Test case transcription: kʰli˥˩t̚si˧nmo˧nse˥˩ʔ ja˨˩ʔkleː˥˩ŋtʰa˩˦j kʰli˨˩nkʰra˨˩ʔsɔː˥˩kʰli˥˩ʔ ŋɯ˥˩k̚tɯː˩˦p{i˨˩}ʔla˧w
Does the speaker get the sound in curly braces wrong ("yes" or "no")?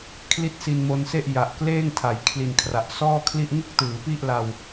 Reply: yes